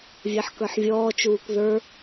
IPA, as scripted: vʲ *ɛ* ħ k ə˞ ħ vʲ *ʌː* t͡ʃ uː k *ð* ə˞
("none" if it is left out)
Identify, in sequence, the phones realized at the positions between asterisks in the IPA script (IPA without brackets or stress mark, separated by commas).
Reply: ɛ, ɔː, ð